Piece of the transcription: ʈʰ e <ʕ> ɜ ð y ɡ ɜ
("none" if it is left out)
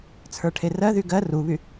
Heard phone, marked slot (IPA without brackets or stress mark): r